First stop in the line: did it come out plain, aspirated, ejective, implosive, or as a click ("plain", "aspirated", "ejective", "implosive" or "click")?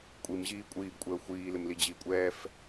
ejective